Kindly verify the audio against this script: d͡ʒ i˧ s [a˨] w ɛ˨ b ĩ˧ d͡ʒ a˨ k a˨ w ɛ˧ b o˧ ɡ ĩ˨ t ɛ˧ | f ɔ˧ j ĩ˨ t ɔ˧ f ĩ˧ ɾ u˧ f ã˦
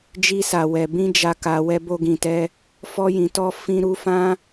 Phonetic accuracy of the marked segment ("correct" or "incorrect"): correct